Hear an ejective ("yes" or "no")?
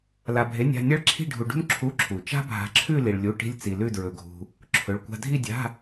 no